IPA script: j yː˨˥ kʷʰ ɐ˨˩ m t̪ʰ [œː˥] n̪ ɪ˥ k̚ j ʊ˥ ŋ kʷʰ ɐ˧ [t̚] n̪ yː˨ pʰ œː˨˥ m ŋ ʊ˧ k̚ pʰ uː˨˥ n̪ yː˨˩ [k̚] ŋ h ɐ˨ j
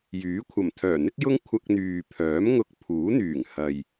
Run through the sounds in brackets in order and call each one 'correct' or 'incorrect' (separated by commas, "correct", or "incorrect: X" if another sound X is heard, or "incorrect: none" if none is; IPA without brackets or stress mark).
incorrect: œː˨˩, incorrect: k̚, incorrect: none